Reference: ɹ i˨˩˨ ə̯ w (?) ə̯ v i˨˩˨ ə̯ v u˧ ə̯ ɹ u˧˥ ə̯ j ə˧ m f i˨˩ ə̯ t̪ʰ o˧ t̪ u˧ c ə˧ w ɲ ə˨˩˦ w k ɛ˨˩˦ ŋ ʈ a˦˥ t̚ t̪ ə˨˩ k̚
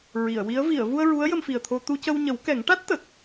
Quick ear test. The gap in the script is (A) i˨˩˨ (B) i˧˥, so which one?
B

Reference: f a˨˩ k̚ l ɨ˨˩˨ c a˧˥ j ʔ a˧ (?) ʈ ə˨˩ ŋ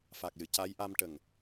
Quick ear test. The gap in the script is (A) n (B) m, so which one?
B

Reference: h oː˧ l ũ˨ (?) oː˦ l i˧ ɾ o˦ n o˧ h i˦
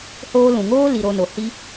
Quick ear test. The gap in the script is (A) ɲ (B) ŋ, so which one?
B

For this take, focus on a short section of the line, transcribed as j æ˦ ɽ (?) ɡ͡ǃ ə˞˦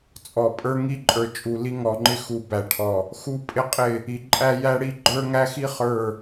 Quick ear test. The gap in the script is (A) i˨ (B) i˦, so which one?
B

